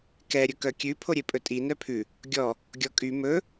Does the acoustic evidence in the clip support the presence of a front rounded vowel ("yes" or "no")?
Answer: yes